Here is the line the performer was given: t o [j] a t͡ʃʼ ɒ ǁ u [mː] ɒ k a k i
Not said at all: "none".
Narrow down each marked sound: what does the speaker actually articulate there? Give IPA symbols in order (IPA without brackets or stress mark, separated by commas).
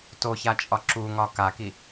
ç, ŋ